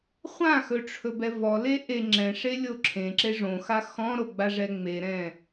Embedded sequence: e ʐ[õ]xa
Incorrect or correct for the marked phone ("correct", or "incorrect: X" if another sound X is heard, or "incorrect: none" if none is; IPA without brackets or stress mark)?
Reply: correct